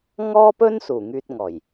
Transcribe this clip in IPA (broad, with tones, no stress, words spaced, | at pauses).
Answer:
ŋɔː˥pɵ˥n suː˨˩ŋyː˧t̚ŋɔː˨˩j